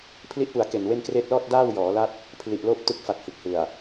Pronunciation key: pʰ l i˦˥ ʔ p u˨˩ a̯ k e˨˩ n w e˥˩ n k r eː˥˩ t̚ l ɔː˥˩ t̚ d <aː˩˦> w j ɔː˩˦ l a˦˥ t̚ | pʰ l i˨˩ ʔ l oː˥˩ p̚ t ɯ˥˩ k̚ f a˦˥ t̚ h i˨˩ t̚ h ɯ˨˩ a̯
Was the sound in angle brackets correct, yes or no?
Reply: no